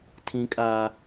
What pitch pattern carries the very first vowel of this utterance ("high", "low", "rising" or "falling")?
high